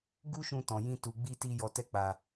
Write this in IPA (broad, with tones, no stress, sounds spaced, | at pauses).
ɡ u˦ ʃ ũ˧ t ɔ̃˨ j ĩ˧ t u˨ ɡ͡b i˧ t i˧ j ɔ˧ t ɛ˦ k͡p a˧